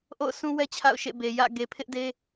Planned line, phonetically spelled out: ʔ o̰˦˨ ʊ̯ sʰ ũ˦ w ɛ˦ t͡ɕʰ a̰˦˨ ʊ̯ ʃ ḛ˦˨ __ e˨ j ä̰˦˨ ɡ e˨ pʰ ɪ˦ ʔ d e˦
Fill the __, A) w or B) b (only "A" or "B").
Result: B